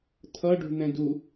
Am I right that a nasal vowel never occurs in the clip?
no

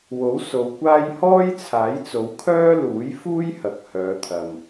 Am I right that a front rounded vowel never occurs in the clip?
no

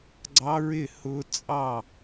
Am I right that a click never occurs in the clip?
no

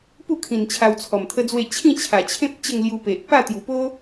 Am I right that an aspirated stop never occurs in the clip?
no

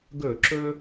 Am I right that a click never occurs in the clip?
no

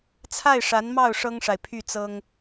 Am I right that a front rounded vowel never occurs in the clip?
no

